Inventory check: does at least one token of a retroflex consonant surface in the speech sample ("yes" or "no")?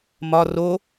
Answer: no